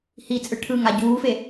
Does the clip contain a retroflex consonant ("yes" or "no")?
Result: yes